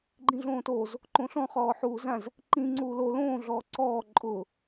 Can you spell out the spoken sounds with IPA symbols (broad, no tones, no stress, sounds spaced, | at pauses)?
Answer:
ɡ͡ǃ ĩ ɮ õː t o z | ǃ õ ɬ ɔ̃ χ ɔː ħ uː z ã z | ǃ ĩ ŋ͡ǀ uː l o l õː ɮ ɔː ǀ ɔː ǃʼ ʊ